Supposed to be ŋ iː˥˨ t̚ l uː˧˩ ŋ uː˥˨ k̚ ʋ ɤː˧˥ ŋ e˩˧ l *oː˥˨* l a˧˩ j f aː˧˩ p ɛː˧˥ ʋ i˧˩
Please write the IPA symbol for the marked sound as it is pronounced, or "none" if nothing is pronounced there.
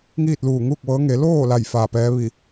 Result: oː˥˨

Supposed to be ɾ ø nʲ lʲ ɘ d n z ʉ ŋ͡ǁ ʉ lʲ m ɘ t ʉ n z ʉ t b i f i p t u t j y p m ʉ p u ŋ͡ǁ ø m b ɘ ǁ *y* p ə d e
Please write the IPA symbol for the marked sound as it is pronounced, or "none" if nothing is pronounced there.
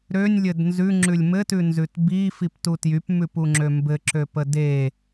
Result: ø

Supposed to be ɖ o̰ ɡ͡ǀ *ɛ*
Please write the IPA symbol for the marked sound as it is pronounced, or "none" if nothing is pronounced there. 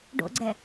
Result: ɛ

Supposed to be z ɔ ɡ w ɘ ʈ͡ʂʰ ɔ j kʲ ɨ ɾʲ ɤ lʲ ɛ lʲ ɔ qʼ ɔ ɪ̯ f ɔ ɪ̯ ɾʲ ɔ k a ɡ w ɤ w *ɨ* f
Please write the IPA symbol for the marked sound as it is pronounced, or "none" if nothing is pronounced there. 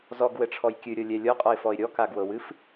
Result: ɨ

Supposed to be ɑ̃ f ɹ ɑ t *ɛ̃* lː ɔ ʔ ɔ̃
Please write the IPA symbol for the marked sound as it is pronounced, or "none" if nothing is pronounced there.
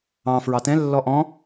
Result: ɛ̃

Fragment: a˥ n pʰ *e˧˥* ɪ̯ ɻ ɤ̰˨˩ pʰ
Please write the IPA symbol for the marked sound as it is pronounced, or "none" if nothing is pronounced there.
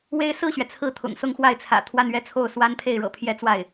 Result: e˥˩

